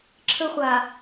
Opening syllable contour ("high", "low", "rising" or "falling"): high